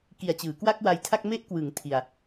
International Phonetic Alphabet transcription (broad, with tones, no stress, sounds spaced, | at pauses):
k i˨˩ a̯ t͡ɕ ɯː˩˦ k w a˥˩ k̚ w a˧ j tʰ a˥˩ k̚ m e˦˥ ʔ k w ɯ˩˦ ŋ tʰ i˧ a̯